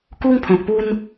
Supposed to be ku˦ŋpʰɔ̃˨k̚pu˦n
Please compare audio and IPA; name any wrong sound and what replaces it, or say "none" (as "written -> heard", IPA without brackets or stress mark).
none